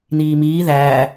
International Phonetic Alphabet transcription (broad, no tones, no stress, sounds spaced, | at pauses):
n iː m iː ð æː